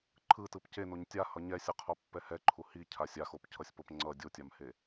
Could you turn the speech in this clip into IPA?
ǃʰɯtɯp cenoɲ tʲahʌ ɲɛsʲɯqʰopːɛ hɛǃʰu hicʰa sʲaxopcʰʌsʲpop ŋ͡ǀʌ dʲotʲamhe

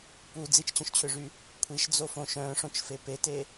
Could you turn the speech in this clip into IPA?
pu d͡zit͡ʃt͡ɕœ̃ʃt͡ɕʰøʐy | kʷʰiʃd͡zofõ ʃœ̃ʂõt͡ʃfe pete

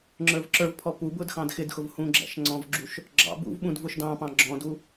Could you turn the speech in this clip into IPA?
ŋ͡ǁə˞vǁə˞vpʰɔ pubʊd xɑ̃dxɪdxʊv hũɡ͡ǁæ̰ʃŋ͡ǀɔ̃vɡ͡ǁuʃ | ɡ͡ǁɑ̰bṵv ɓũdvʊʃdɑ̃pɑ̃ ɡ͡ǁɔ̃du

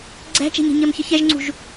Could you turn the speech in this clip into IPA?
ɡ͡ǀæ̤t͡ʃɛ̤ɲɛ̤ ɲɜmçəçɛʒŋ͡ǀṳʒ

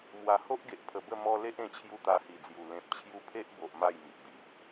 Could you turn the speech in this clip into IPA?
mwa˨˩ho˦ʔɡe˨ʔ pʰə˨˩bə˥˧ mɔ˧ le˦ʔẽ˧t͡ɕʰju˧ t̪a˧hi˨˩d͡zju˨˩ lẽ˨p̚t͡ɕʰju˧pʰe˦ʔbo˨ʔ ma˥˧jmi˨ʔbi˨ʔ

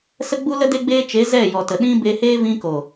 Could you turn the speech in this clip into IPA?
sə˦ɡ͡bu˦ lə˦ de˦ɡ͡beː˦ t͡ʃe˨˦ zɛ˦˨jɔ˨tə˨ɗĩ˦ be˧he˦ vĩ˧ko˨

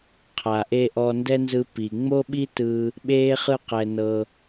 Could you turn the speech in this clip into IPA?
qʰa˨ʔe˧ ʔɔ˧ndɛ˦nzɯ˧ pi˨ŋ͡mo˦ɓi˦tɯ˧ | ɓeː˦χɯ˦qɛ˧ nɤ˧

